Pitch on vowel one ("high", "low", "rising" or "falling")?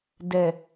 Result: low